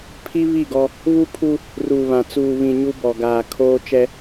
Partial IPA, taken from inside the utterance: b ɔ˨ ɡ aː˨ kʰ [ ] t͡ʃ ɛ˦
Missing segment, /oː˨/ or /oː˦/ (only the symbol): oː˦